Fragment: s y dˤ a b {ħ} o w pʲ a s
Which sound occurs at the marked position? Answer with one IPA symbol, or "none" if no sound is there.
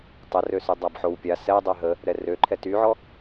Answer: ħ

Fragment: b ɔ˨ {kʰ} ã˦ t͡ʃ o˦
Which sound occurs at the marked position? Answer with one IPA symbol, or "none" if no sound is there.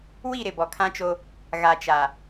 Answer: kʰ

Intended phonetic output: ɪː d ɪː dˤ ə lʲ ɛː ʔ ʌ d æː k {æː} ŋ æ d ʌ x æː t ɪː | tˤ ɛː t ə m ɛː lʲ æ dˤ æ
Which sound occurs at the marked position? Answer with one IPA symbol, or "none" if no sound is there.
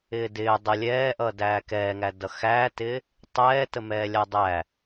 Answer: ɛː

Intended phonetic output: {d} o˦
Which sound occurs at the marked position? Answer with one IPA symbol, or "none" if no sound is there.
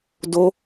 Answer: d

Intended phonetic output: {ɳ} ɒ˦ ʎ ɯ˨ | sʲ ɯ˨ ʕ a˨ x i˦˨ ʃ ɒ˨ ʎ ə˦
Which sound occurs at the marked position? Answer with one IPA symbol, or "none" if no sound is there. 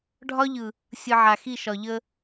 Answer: ɖʱ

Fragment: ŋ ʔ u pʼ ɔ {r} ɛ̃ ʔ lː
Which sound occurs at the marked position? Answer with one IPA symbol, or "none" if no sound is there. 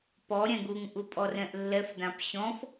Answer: r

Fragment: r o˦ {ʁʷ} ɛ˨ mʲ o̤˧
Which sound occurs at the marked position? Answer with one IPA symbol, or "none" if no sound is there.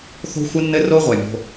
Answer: ʁʷ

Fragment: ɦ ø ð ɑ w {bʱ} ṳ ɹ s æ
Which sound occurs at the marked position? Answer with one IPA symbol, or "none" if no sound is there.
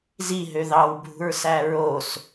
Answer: bʱ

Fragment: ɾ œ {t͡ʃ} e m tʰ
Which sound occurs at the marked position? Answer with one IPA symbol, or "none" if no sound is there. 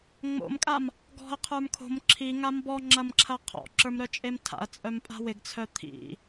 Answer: t͡ʃʼ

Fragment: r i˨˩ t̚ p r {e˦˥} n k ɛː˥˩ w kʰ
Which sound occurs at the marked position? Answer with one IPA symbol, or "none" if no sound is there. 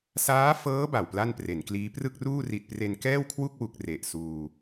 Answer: e˧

